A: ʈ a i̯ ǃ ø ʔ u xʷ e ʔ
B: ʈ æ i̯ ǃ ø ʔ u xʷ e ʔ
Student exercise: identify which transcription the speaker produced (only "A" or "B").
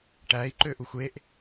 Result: B